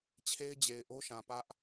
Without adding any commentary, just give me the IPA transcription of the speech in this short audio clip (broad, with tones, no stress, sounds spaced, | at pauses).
t͡ɕʰ e˦ ɪ̯ d͡ʑ e˨ ɪ̯ ʔ o˦ ʃ ã˨ p ä˦ ʔ